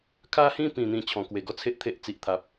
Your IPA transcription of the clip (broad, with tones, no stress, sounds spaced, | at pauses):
kʰ a˦ h ĩ˦ p ĩ˨˩ n̪ ĩ˨˩ t͡ɕʰ ɔ̃˨˩ k w e˨˩ ɡ ɔ˥˧ t͡sʰ e˦ ʔ t̪ʰ e˦ ʔ t͡s i˨ ʔ t̪ʰ a˨ p̚